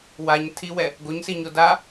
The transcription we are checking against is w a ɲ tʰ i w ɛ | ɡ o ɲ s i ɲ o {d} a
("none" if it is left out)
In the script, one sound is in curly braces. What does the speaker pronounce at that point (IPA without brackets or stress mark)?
d